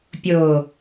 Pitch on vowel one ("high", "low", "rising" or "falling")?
low